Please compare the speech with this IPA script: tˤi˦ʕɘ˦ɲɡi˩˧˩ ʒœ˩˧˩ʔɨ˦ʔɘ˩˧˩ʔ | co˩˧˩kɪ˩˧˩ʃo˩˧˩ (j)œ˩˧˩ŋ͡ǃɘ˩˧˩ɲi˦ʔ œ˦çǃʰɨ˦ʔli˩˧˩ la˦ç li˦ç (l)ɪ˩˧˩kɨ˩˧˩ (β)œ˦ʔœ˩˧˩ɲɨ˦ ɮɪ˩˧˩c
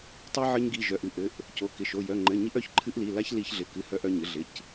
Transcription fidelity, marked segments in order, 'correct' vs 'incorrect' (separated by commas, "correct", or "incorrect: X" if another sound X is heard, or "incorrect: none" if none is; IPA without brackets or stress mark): correct, incorrect: ɮ, incorrect: h